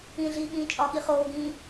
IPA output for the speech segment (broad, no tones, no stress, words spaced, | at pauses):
ĩɮiːɠĩː t͡ʃʼɒɠi χoːɡĩː